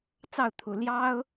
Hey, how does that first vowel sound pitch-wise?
falling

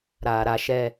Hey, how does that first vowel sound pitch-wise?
low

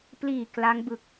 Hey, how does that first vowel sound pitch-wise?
low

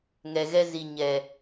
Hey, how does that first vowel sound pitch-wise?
low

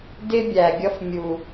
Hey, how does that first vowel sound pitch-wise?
high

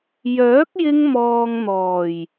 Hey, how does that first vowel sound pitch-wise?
rising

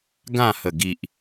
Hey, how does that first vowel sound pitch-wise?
falling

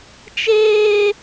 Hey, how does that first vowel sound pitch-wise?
high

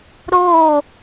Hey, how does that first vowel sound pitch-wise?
falling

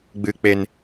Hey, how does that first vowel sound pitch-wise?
low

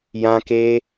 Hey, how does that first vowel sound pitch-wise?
high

